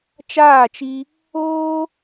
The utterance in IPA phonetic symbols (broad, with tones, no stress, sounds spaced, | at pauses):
t͡ʃ aː˦˨ t͡ʃ i˧ | oː˦